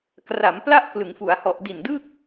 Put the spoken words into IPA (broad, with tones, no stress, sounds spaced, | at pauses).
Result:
k r a˩˦ m p l a˥˩ ʔ k l ɯ˩˦ ŋ f u˩˦ a̯ h ɔ˨˩ ʔ d i˨˩ n d ɯ˥˩ k̚